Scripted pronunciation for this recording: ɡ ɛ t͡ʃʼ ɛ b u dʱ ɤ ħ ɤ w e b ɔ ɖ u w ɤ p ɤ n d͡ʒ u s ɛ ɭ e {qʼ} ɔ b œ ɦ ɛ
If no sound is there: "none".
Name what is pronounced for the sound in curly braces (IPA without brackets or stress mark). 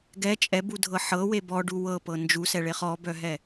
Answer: χ